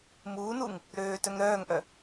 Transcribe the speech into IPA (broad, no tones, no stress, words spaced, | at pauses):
muːnuŋ | ɾøːtœŋ ɾœːŋʔœ